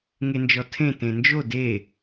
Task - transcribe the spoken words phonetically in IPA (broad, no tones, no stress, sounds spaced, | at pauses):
ŋ e n d͡ʒ ɔ tʰ ẽ t ẽ n d͡ʒ o d e